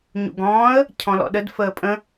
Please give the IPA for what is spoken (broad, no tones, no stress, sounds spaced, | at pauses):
ɲ ṵ ɡ ɔ̃ː ə̯ | cʰ ɔ̃ l ɔ̰ ɗ ə d f əː pʼ ə̃